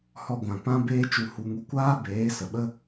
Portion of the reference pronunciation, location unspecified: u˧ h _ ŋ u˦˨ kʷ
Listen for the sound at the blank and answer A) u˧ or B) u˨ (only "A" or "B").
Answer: A